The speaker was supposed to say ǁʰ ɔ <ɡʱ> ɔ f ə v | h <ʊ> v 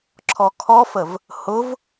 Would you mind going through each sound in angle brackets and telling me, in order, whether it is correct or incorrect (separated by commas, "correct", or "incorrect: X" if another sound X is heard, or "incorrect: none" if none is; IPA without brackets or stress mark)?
incorrect: kʰ, correct